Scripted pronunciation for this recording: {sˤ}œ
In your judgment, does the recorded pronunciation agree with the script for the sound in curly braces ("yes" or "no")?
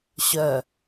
no